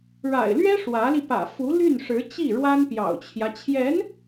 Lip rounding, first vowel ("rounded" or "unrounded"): unrounded